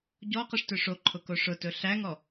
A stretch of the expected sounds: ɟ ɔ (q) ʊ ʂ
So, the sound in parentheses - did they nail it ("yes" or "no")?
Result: yes